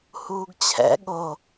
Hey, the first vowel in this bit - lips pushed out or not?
yes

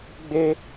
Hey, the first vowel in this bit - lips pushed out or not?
no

